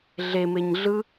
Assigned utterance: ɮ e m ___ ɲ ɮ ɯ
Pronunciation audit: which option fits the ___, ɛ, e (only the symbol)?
e